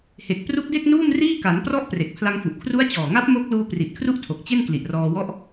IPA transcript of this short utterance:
he˨˩k̚ pru˦˥k̚de˥˩k̚ nuː˥˩mriː˥˩ka˩˦nprɔ˥˩ʔ pre˨˩k̚pʰla˧ŋfu˨˩ʔ kʰru˦˥a̯t͡ɕɔː˨˩ŋa˦˥p̚ mo˦˥k̚luː˧ pri˨˩t̚kʰru˥˩ʔtʰo˨˩k̚ t͡ɕe˥˩nkli˨˩ʔrɔː˧wɔ˥˩ʔ

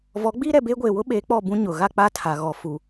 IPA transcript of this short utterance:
vɔ˨˦ɡ͡biː˦ɾɛ˨beː˦ ɡʷeː˨wʊ˦ɓeː˨˦ k͡pɔ˦˨bũ˦ ɲʊ˨ ɣa˦ k͡pa˦tʰa˨ ɣɔ˨ fu˨

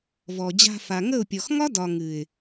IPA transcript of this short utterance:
vɔ˨d͡ʑa̤˧ fa˨ŋə˦˨ʊ̯pʲɔ˨x ŋɒ˦dɒ˨ ŋɨ˨ɪ̯

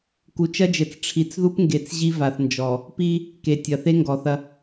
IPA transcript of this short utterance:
ku˨t͡ʃɐ˦d͡ʒɘ˨t͡s ʈ͡ʂʰi˨t͡sðu˦pŋɡe˨t͡s ʑi˦va˨θnd͡ʒɔ˨ | pi˦ | ke˨tʲɐ˨ θe˦ŋɡɔ˨θɐ˦

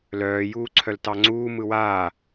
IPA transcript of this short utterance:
lœːjuːǀʰœl tɑŋ͡ǀuː mɯwaː

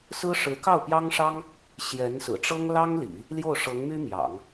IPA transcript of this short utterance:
sɹ̩˥ ʂɻ̩˧˥kɑ˥˩ʊ̯pjɑ˥ŋʂɑ˥ŋ | ɕjɛ˧˥nsɹ̩˨˩ʈ͡ʂɤ˥ŋ lɑ˥ŋlḭ˨˩˦ | ljo˥˩ʊ̯ʂɤ˧˥ŋmy˥ mjɑ̰˨˩˦ŋ

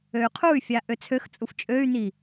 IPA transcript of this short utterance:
øy̯qʰuy̯fʲa ʔøt͡sʰøxt͡sʼuf t͡ʃʼøy̯n̪i

